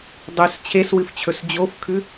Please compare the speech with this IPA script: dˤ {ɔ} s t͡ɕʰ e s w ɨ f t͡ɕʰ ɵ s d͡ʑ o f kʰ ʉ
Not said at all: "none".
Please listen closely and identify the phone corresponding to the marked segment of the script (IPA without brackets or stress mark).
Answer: ɵ